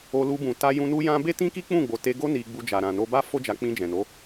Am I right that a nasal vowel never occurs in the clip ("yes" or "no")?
no